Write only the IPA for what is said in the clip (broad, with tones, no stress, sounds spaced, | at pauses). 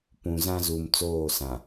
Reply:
p ũ˨ z ã˦ z u˨ m t͡s oː˦˨ s ã˨